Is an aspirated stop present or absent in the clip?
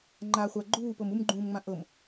absent